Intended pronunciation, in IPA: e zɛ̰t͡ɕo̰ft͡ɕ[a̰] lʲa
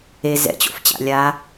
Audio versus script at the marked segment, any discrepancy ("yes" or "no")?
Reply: no